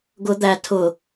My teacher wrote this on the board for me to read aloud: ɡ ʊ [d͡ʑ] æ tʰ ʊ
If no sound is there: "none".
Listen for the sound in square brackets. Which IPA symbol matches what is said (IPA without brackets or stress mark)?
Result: d̪